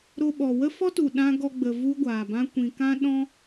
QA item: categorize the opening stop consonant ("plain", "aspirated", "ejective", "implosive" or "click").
implosive